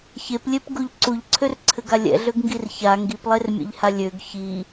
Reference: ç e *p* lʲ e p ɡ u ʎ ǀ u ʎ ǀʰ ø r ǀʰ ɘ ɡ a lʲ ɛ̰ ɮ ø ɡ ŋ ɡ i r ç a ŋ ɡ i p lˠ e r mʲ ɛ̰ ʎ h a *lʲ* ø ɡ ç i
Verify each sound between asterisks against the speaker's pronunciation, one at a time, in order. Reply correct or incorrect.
correct, correct

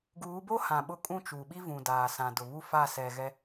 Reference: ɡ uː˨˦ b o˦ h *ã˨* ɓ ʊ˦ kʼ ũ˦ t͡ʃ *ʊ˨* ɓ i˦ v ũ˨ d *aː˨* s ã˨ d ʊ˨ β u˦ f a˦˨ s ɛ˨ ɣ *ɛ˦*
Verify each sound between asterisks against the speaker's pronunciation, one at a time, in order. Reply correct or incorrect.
correct, incorrect, correct, correct

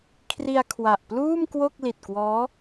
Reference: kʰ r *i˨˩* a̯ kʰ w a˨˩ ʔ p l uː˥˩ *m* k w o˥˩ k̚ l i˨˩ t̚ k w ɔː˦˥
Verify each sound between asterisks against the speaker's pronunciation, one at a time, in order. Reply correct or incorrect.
incorrect, correct

